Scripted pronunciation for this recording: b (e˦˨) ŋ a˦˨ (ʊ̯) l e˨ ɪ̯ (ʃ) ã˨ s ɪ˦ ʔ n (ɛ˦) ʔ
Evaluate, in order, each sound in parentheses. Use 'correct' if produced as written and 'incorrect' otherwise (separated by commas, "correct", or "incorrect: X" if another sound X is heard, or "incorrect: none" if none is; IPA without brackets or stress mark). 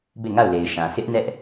correct, correct, correct, correct